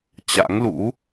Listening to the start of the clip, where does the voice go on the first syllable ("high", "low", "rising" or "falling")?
rising